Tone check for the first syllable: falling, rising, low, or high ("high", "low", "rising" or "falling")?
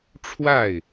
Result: falling